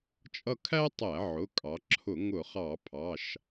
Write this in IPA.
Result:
t͡ʃʼʌ˦˨kʰæ˥tˤæ˧˩˧ ʕʊ˩˧˩ kʼɑ˩˧ǁʰʊ˧˩˧ ŋʊ˧˩˧χɑ˧˩˧ pʰɑ˩˧˩ʃ

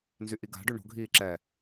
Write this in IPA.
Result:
nzyʔiɡa̤ɖø ɳo̤ɡʱiː ǁɛ

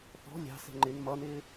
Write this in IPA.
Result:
θɔ̤ lʲɑ̤sɛ̤ ŋ͡ǃɪn mʌnɪː

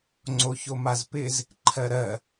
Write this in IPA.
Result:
ŋ͡ǀoçomazpɪz | ǃʰɜɾɜ

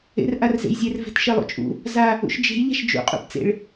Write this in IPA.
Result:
ḛrʔarzḛjzʲer ve̤tʃelˠṵt͡ʃʼṵ | za | ṵʃd͡ʒe̤j ʎa̤ʃd͡ʒṵ qʼṵpt͡sḛɭ

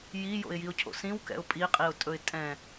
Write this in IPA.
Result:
jijo̰ɪ̯jiʊ̯cʰo̰ sĩwkɛ̰ʊ̯ pʼiqʼiʊ̯tʼɵɪ̯ tʼɛ̃

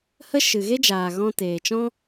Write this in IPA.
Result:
hə˦ ʃɨ˨ɣe˦d͡ʒaː˨ ɣɔ̃˧ teː˨t͡ʃɔ̃˦

